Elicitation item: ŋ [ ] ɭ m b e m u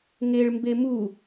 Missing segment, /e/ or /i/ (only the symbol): e